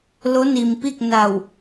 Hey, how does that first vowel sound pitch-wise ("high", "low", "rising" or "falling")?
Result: rising